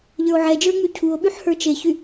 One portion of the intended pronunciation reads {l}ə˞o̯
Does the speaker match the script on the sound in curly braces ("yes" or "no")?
no